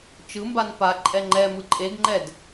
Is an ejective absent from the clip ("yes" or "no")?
no